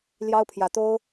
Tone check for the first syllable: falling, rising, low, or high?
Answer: high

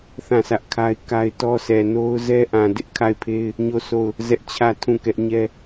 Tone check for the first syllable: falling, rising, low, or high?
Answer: falling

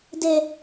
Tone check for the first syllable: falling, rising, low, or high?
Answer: low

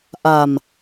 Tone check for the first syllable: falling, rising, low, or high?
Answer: low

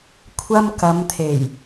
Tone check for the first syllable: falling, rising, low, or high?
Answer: high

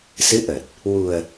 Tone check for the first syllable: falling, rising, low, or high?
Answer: rising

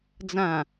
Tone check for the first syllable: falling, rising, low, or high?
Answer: low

